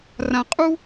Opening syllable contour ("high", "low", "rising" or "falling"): low